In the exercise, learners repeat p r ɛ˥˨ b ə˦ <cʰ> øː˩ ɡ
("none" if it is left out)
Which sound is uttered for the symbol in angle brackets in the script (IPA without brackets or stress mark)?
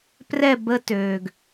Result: t